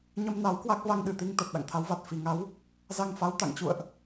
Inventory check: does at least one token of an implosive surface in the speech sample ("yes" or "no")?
yes